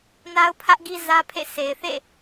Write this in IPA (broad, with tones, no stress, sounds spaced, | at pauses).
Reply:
n a˦ ʊ̯ pʰ ä˦ ʔ ɡ i˦ z ä˦ pʰ ḛ˦˨ sʰ e˨ ɪ̯ θ ḛ˦˨